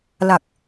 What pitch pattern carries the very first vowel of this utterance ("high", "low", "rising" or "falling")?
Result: low